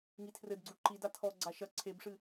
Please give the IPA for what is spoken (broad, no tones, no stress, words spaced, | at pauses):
ŋitʰrɘdɡ͡ǀu ǃida tʰɔɡ͡ǀa ʃɐ ǀʰebʂɨ